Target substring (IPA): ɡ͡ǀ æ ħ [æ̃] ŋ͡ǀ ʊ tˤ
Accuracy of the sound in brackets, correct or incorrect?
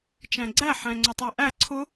correct